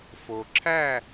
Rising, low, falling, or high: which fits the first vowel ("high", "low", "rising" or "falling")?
low